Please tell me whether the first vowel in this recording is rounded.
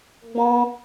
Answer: yes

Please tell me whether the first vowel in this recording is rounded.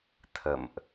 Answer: no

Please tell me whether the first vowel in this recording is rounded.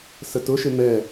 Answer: no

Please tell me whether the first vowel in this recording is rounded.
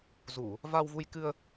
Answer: yes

